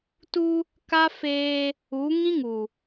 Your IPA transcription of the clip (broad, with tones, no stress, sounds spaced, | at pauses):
t u˦ | k a˦ f eː˦ | u˨˦ ŋ ĩ˦ ŋ u˨